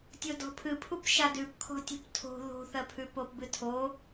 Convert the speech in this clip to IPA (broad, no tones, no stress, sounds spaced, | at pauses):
tʲ o d ɔ̤ pʰ ɨ pʰ u p ʃ a d ʉ p kʰ ɔ̤ tʲ o̤ p tʰ o̤ ð o̤ θ ɜ pʰ ʉ p o p b ɨ tʰ o